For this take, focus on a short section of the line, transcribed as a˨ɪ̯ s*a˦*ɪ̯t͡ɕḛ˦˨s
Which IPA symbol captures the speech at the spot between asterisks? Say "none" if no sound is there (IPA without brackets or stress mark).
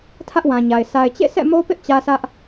a˨